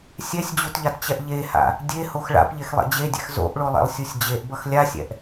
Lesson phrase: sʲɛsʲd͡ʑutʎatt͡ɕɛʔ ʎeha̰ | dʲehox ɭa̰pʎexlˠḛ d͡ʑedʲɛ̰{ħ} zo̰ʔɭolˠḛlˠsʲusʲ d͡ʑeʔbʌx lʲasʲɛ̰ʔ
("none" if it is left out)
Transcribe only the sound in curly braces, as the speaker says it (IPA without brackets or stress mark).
x